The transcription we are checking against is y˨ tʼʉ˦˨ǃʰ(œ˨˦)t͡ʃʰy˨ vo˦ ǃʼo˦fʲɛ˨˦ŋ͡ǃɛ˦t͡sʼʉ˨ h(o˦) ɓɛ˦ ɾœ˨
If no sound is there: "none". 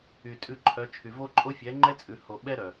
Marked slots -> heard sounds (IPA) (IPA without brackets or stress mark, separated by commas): œ˨˦, o˨